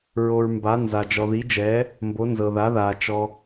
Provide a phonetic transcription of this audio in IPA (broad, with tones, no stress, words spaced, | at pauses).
ɹo˨ɹ mba˨˥nza˨ d͡ʒɔ˨ði˨˥d͡ʒɛː˨˥ | mbo˨˥ nzɤ˨ða˨˥ðaː˨ t͡ʃɔ˨